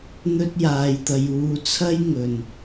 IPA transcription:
n̪ ɵ˥ t̚ j aː˧ j t̪ ɐ˧ j uː˧ t͡sʰ ɐ˥ j ŋ ɵ˨ n

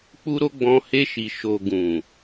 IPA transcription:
k͡p u˧ ɾ o˧ ɡ͡b ɔ̃˨ h e˧ ʃ i˨ ʃ o˨ ɡ ũ˨

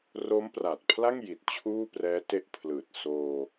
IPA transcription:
r o˦˥ m p r aː˨˩ t̚ pʰ l a˥˩ ŋ j i˨˩ t̚ t͡ɕʰ uː˥˩ p r ɛː˦˥ t e˦˥ ʔ pʰ l ɯː˨˩ t̚ s oː˧

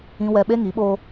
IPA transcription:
ĩ˦ w ɛ˦ ɓ e˦ ŋ i˨˦ ɓ oː˦

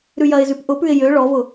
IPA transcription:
ɾ ʉ j ɐ ɪ̯ z ʉ p ʔ ʊ p ʉ ɪ̯ j ø ɭ ɔ v ʊ

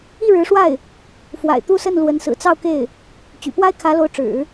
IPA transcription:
i˥˩ ɻ ɻ̩˧˥ ʂ w a˥˩ ɪ̯ | f w a̰˨˩ ɪ̯ t̪ u˥˧ s ə˥˩ n l w ə˧˥ n s ɹ̩˨˩ t͡s ɑ˥˧ ʊ̯ k e˥˩ ɪ̯ | t͡ɕ y̰˨˩ p w a˥ ɪ̯ kʰ ä˧˥ l o˧˥ ʊ̯ ʈ͡ʂ ɻ̩˨˩˦

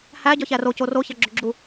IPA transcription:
h æ ɟ ɒ ç æ r o c o r o ç æ ɡ͡ǁ o ɡ͡ǁ u

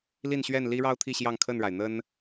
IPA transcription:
l i˥˨ n ɕ ɥ ɛ˥˨ n l i˦ ɻ ɑ˦ ʊ̯ t̪ʰ i˥˨ ɕ j ɑ˥˨ ŋ kʰ ə˥˨ n ɻ a˩ ɪ̯ n̪ ə˦ n

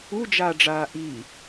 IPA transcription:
u d͡ʒ aː ɖ͡ʐ aː ʔ iː

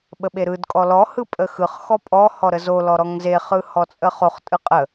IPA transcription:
ɓ ə ɓ e ɾ ɯ d kʼ ɔ l ɔ h ɯ pʼ ə x ɯ χ x ɔ pʼ ɔ h ɔ ɾ ə z o l ɔ ɾ ɔ ŋ z e χ ɯ h ɔ t͡sʼ ə χ o χ tʼ ɯ qʼ ə

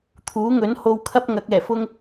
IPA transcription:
t̪ʰ uː˨˥ ŋ ɵ˨˥ n h o˧ w kʰ ɐ˥ p̚ ŋ ɐ˨˥ k̚ ɛː˨˩ f ʊ˥ ŋ

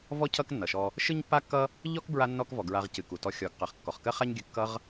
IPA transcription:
v ɔ˦ cʰ ʌ˦ k nː ʌ˨ ʃ ɔ˧ | ʃ ɨ˦ ɲ pː a˦ kː ʌ˦ | ʎ ɔ˦ k b ɹ a˦ nː ɔ˦ k v ɔ˨ ɡ ɹ a˧ ʁ c ɨ˨ k u˨ t ɔ˧ xʲ ɔ˨ ɡ q ɜ˨ χ kː ɔ˨ χ k ɜ˦ χ a˦ ɲ ɡʲ ɨ˧ kː ʌ˧ ʁ

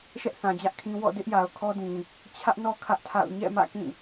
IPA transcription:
ʃ ɛ˦ ʔ θ ã˨ d͡ʑ ä˦ ʔ kʰ ĩ˦ w ɔ̰˦˨ d ɪ˦ ʔ j a˨ ʊ̯ kʰ ɔ˦ d ĩ˨ | t͡ɕʰ ä˦ ʔ n ɔ˦ kʰ ä˦ ʔ tʰ a̰˦˨ ʊ̯ ɲ ɛ̰˦˨ m ä̰˦˨ k ĩ˦˨

